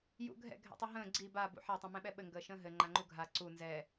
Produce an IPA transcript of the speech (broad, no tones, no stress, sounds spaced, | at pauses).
j ṵ ɡʱ ɛ̰ ɡʱ ɛ̰ tˤ u ɦ ə̃ː ɡ͡ǀ i b a b ṵ ħ a tˤ ɛ̃ m ɛ̃ ɓ ɛ ɓ ɘ ŋ ɡ əː ʃ ə̃ː ɦ ɘ ŋ͡ǃ a ŋ͡ǃ u ɡʱ a ǀ u n z ɛ